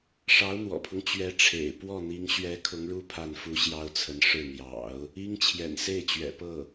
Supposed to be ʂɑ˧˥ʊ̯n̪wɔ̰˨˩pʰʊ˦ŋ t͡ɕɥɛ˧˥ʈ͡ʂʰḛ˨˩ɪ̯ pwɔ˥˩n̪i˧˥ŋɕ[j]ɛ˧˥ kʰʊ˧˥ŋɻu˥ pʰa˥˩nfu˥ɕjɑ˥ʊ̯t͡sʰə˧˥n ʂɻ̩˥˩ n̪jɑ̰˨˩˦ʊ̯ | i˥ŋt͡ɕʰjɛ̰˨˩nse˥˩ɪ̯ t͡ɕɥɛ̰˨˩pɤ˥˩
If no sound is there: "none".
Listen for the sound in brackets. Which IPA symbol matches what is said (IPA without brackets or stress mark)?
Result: ɥ